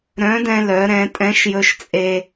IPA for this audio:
ɾ œ̃˨˥ d ɛ̃˧ l œ˩˧ ɾ ɛ̃˩˧ tʼ ɛ̃˨˥ ʃ j ɵ˧ ʃ t͡sʼ e˧

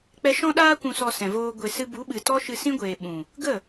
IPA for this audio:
k͡p ɛ˧ ʃ ɔ̃˧ ɗ aː˧ kʷ ũ˨ s ɔ˨ s ɛ̃˨ v oː˧ ɡʷ e˨ s ɨ˧ b u˨˦ ɓ ɨ˨ t ɔ˦ ʃ ɨ˧ s ĩ˦ ɡʷ eː˨ ɓ ũ˨ | ɡ ə˦˨

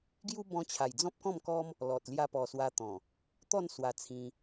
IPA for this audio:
ɡ j u˦ b ɔ̃˧ t͡ɕʰ a˨˩ j d͡z ɔ̃˦ p̚ k ɔ̃˥˧ m k ɔ˦ m | l ɔ˨ t̚ l j a˧ p ɔ˨˩ s w a˧ t̪ ɔ̃˨˩ | t̪ ɔ˥˧ n s w a˨˩ t͡sʰ ĩ˧

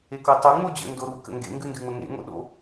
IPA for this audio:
e k o tˤ u ŋ͡m o d͡ʑ ə̰ n d o ɾ u k ə̰ ŋ ɡ ḛ ŋ ɡ ʉ n d ʉ ŋ͡m ə ŋ ḛ ŋ o̰ ɗ o̰

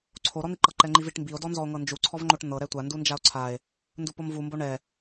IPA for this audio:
ǀʰ o ɾ ɔ n̪ i ǃ ɤ ǃ ɛ ŋ͡ǃ i v i ʈ m b i o̯ d ɔ n z ɔ o̯ ŋ ɤ n d͡ʒ u ǀʰ ɔ v ŋ͡ǃ o ʈ n̪ ɤ ɾ ɛ tʷ a n d u n d͡ʒ a o̯ ǀʰ a e̯ | n d u p o m v u m b o ɳ ɛ

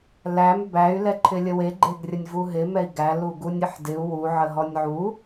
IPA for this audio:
l æ m b æ y̯ l ɛ ǃʰ ɪ lʲ ə w e ɡ͡ǃ e ɡ rʲ ə nʲ v u ɦ ɪ m ɛ i̯ ɡ æ l u ɡ u nʲ ɪ ħ d ɪ u̯ w u ʕ ə ɦ ɔ nʲ ʕ u

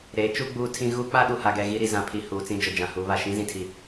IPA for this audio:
ɾ eː˨˦ t͡ʃ u˦ ɡ͡b uː˦ tʰ ĩ˦ ɣ u˦ k͡p a˦ ɗ u˨ h a˨ ɡ ɛ˨ ɣ i˦ ɾ i˨ z ã˨ pʰ i˨ h uː˨ t͡s ĩ˦ d͡ʒ ʊ˨ d͡ʒ ã˨ h u˨˦ β a˨ ʃ ĩ˦ z ĩ˨ tʰ i˨

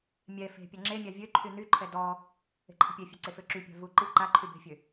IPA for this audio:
mʲ ɛ f e̤ pʲ a ŋ͡ǁ e mʲ a vʲ ø ǃʰ y n y ǃʰ ɛ d ɔ | e̤ ǃʰ ə̤ pʲ e fʲ e ǀ e f ø ǁ y pʲ a̤ v u ǃ i ǃ a ǃʰ y b e̤ fʲ ø

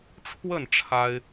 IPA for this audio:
ʈ͡ʂʰ w ə˥˩ n ʈ͡ʂʰ a˥ ɪ̯

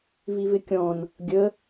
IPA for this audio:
v i v ɪ kʲ ɔ̃ n | ɡʲ ə

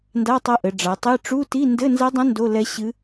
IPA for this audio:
n d a˧˥˧ tˤ ɐ˧˥ ʔ ɘ˩˧ ɖ͡ʐ a˩˧ tˤ e˧˥˧ ʈ͡ʂ u˧˥˧ t i˧˥˧ n d ɘ˧˥˧ n z ɐ˧˥ dˤ ɐ̃˧˥ n d o˧˥˧ l ɛ˧˥ ɕ ɨ˧˥

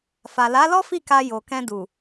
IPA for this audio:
f a˨ l a˨˦ l ɔ˦ f i˦˨ k a˧ j o˨ k ɛ̃˧ d u˨

